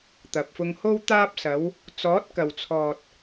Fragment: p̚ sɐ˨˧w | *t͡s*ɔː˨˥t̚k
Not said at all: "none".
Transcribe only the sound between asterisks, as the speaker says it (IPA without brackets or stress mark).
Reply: t͡s